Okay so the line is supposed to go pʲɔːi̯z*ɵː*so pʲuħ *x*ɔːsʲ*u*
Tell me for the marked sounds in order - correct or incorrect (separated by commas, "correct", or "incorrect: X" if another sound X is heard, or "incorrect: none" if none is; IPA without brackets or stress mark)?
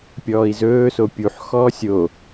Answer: correct, correct, incorrect: o